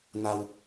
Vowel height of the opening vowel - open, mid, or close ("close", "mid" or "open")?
open